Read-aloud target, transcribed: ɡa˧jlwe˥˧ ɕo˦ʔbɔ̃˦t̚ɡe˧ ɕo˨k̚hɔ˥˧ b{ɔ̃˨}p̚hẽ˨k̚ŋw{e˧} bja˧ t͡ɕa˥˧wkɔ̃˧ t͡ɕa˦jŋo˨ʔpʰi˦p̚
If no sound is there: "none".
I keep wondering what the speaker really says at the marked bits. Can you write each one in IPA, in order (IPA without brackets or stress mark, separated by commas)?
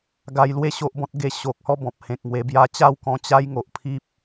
ɔ̃˨, e˧